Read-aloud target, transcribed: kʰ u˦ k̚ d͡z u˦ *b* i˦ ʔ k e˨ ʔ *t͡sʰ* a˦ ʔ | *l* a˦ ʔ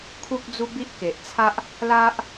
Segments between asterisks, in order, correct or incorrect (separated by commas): correct, correct, correct